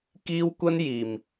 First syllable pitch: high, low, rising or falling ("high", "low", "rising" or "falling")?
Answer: high